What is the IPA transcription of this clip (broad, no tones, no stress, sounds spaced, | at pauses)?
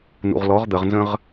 n ṵ ʁ l ɔ ʁ d̪ ə ʁ n z ə̃ ʁ